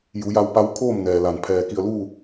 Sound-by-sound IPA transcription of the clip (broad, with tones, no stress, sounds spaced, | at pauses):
j u˩˧ j a˧ w p a˧˥ w kʰ oː˥˨ m n ɛː˩ l a˩ n pʰ ɛː˩ k i˧˩ ə̯ l uː˥˨